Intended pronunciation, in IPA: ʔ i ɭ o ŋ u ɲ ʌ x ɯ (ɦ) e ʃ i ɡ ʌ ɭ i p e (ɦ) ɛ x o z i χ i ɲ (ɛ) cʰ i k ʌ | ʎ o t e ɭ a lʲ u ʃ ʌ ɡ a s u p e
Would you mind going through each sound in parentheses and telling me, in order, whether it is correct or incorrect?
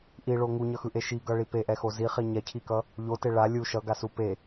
incorrect, incorrect, correct

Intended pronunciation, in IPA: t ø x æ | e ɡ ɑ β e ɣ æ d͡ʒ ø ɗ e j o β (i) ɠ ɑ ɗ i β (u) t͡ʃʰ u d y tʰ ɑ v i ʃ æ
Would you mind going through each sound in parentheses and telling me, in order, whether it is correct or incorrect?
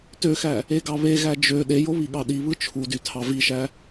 correct, incorrect

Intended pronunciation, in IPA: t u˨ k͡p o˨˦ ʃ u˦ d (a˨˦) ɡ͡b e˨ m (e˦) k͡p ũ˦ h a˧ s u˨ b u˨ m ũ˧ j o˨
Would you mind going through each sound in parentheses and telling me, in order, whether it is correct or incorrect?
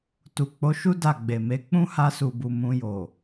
incorrect, incorrect

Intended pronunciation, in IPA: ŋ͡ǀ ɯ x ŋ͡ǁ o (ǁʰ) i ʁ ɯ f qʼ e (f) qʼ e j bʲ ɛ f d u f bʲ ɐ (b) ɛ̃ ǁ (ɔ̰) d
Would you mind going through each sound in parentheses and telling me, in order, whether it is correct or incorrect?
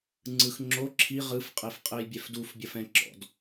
correct, correct, incorrect, correct

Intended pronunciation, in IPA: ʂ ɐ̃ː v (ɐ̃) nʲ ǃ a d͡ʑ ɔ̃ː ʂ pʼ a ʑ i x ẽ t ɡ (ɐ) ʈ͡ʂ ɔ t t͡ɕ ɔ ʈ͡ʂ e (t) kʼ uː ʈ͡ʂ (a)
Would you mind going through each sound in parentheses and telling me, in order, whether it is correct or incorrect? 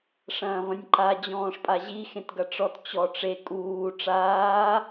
correct, correct, incorrect, incorrect

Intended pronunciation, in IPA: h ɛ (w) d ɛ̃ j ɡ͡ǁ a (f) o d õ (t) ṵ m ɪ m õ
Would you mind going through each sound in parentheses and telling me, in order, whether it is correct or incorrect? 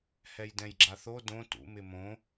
incorrect, incorrect, correct

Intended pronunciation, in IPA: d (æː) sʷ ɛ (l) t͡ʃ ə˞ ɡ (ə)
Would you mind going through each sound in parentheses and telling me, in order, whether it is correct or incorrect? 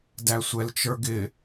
incorrect, correct, incorrect

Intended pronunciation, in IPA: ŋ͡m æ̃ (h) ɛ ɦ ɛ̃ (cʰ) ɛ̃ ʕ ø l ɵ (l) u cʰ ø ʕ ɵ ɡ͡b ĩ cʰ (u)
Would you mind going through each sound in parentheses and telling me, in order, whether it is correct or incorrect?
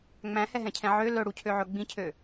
correct, correct, incorrect, incorrect

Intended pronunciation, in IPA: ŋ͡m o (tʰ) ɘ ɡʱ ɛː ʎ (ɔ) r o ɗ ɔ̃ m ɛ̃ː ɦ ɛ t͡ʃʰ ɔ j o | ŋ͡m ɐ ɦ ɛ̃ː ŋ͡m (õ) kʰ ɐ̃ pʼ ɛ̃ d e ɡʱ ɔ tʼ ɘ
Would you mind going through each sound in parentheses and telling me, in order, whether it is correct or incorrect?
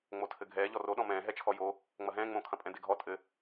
correct, correct, correct

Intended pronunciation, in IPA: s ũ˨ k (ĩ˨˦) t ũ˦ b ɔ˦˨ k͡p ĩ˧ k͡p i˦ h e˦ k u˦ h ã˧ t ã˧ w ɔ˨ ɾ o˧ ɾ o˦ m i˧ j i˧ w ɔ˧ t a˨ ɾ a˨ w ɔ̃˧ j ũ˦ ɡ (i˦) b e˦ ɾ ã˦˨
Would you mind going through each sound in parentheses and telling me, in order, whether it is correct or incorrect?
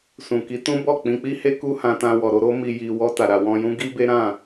incorrect, correct

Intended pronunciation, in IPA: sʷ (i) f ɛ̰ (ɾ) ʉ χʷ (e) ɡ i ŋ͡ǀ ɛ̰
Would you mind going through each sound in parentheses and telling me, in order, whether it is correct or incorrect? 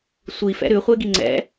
correct, correct, correct

